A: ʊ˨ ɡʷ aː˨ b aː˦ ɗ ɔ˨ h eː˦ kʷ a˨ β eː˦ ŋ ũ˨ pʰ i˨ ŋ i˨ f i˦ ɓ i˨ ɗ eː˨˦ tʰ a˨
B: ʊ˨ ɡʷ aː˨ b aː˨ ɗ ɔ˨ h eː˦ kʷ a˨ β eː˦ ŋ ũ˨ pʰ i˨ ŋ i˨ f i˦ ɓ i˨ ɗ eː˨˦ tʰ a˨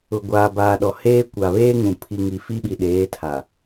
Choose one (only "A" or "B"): B